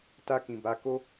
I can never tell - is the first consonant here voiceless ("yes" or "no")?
yes